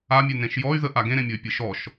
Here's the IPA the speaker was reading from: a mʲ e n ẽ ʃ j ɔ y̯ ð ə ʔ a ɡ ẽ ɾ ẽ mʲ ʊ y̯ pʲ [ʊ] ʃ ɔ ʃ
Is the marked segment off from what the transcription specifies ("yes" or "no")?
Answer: yes